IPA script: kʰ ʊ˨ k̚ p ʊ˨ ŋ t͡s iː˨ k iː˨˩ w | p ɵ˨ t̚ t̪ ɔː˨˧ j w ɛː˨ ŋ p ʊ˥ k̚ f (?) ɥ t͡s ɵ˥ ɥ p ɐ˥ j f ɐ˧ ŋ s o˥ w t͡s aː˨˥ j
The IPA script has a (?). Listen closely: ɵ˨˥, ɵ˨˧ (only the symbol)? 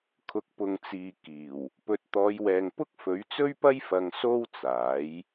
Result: ɵ˨˥